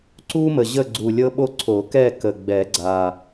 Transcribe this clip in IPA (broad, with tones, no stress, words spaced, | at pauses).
ǀu˥mə˨˩ ʑə˥˨ɡ͡ǀu˨˩lʲɤ˥ɓo˥ ǀʰo˨˩˦kɛ˥˨kə˨˩ɡ͡bɛ˨˩˦ ɡ͡ǀa˨˩